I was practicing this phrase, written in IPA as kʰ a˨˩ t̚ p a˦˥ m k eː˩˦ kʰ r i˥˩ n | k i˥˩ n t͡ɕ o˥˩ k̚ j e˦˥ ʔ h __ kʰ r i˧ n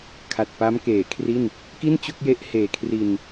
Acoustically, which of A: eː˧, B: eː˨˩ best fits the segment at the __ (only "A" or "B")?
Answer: B